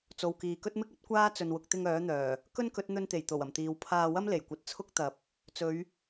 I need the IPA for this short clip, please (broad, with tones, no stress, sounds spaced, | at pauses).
t͡s o˨ w k iː˨ k ɵ˥ t̚ m ɪ˥ k̚ ɐ˥ t̚ kʷ aː˥ t͡s ɵ˨ n w ʊ˨ k̚ t̪ ɪ˧ ŋ œː˨˥ n̪ œː˨˩ | k ɵ˥ n k ɵ˨˥ t̚ n̪ ɵ˧ n t̪ e˨˩ j t̪ o˨˩ w ɐ˨˩ m t̪ iː˨ w pʰ aː˧ w ɐ˥ m l e˨˩ j kʷ ɐ˨˥ t̚ t͡sʰ ʊ˥ k̚ t̪ ɐ˨˥ p̚ | t͡s ɵ˨˧ ɥ